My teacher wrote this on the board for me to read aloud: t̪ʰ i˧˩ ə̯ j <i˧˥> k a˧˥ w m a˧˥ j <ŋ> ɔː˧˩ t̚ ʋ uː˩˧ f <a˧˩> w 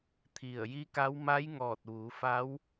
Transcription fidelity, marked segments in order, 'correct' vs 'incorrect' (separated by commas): correct, correct, incorrect